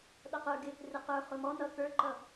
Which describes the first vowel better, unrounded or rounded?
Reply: unrounded